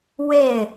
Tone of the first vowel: falling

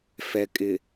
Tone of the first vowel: low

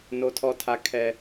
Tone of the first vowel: high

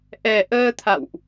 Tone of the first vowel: low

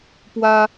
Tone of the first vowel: high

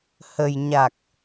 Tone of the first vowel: low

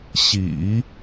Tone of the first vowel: low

